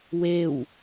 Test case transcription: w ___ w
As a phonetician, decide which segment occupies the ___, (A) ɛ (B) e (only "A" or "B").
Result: B